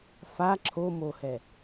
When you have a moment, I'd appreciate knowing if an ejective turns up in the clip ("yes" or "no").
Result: no